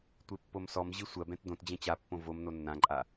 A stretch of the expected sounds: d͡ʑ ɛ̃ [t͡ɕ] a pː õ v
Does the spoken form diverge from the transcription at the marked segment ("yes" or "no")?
no